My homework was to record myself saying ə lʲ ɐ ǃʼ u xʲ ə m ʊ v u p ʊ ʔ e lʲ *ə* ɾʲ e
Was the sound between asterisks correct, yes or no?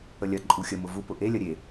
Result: no